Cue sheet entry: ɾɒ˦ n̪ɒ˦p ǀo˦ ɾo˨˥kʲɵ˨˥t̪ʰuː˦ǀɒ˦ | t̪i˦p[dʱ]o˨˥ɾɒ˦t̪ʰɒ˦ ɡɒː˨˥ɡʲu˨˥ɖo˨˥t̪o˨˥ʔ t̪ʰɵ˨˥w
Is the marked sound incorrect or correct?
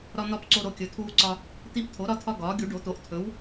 incorrect